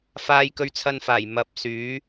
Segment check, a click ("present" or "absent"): absent